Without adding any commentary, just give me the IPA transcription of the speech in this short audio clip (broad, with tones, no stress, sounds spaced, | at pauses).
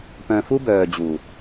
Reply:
p œ̃˧ f u˦ b œː˨ d͡ʑ u˨